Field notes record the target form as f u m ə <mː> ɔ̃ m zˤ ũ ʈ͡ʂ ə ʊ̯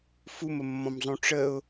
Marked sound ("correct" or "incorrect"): correct